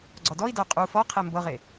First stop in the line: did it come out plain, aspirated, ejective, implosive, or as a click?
click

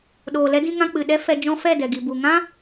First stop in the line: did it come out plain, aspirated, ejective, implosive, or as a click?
implosive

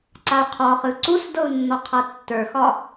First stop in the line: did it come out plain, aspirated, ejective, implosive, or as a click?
click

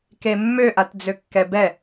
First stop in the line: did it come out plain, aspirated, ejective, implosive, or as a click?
plain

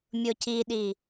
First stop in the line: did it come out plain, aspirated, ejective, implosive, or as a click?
plain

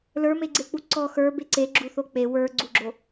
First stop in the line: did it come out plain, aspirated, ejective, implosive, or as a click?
click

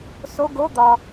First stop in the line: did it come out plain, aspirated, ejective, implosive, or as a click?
plain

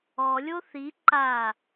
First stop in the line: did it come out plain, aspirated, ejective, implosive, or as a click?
click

